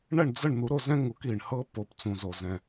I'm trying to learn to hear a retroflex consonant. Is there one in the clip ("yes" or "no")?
yes